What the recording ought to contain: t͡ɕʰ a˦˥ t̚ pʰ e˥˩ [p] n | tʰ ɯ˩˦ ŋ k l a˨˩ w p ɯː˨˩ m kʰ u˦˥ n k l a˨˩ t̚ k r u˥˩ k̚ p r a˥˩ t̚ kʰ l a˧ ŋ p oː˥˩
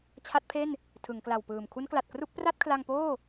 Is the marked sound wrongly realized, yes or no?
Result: yes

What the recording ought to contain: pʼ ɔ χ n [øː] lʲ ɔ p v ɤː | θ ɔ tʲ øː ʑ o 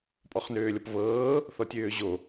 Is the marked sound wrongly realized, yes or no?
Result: no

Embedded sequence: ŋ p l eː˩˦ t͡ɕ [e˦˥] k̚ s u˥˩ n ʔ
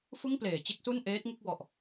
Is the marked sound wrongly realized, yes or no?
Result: no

